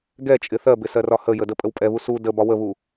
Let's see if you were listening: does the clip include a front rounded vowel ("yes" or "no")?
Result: no